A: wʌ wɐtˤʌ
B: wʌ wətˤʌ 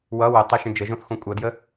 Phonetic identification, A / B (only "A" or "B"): B